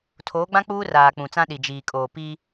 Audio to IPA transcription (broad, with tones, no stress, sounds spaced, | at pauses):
tʰ oː˨˦ ɡ͡b ã˦ k͡p uː˦ r aː˨ k͡p ũ˨ t͡s ã˦ ɗ i˨ d͡ʒ iː˨ kʼ oː˨ p i˦